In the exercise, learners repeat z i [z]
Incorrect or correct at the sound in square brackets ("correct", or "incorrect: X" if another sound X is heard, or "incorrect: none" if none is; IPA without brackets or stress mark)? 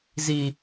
incorrect: none